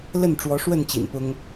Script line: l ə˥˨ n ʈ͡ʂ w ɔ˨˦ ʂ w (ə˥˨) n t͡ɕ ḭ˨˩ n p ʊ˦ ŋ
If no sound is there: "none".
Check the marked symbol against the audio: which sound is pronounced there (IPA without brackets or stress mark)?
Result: ə˥˨